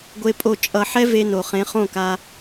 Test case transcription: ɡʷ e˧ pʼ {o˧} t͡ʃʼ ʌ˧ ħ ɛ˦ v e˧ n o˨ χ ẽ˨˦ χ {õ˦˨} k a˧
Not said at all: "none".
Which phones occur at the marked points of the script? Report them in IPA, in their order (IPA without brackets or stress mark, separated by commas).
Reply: o˧, õ˦˨